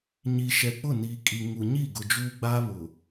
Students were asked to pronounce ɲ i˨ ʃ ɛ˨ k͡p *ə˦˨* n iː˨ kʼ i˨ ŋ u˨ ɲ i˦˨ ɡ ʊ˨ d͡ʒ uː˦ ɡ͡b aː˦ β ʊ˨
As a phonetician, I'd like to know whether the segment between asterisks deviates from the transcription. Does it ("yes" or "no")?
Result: yes